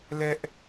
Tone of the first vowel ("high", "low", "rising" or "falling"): high